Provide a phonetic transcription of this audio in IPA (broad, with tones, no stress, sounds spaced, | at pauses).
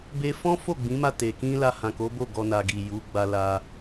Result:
b e˧ f ɔ̃˦ f o˦˨ ɡ͡b ĩ˨˦ m a˦˨ t e˨ k ĩ˧ l a˧ h ã˨ k o˨˦ b o˦˨ ɡ ɔ˧ n a˨ ɡ i˨ j u˨˦ ɡ͡b a˧ l a˧